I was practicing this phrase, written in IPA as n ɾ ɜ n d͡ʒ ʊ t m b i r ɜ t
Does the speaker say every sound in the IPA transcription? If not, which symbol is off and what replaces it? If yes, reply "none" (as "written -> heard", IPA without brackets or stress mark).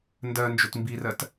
ɾ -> d